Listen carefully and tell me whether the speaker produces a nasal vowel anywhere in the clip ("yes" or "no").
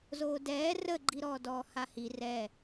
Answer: no